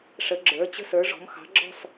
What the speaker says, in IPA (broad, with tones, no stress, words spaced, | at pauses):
ʂə˩˧ɡ͡ǁə˞˩˧ t͡ɕə̤˧˩sə˞˩˧ʐɔ̤˩˧mxɑ̤˩˧ ɡ͡ǁɔ̤˧˩s